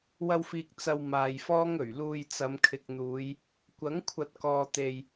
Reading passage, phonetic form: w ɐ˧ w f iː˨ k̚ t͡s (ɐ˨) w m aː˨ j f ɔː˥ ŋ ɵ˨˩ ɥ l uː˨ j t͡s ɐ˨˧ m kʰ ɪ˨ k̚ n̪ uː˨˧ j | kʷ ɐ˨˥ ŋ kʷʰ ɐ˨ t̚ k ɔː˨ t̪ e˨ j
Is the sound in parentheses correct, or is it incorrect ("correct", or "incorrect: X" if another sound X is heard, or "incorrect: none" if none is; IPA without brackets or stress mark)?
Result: correct